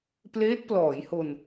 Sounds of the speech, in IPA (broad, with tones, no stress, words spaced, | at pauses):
pleː˦˥t̚plɔː˩˦jho˧n